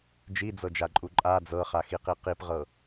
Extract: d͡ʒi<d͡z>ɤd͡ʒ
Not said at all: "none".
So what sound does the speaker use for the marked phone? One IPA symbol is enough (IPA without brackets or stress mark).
d͡z